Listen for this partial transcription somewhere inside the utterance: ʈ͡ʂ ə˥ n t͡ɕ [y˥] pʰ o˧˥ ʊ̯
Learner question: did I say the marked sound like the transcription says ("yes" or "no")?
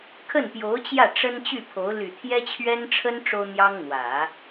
no